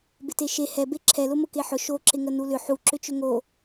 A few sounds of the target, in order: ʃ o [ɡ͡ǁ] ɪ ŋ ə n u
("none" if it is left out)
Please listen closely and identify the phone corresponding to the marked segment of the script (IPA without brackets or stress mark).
ǁ